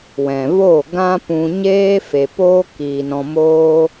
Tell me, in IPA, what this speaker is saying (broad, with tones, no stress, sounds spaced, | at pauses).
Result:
w ɛ̃˨ v o˦˨ ɡ ã˦ p ũ˧ ɲ eː˦ f e˨ p oː˦ k iː˨ n ɔ̃˧ m oː˦